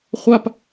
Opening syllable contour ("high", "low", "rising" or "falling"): high